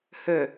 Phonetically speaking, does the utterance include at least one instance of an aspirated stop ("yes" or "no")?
no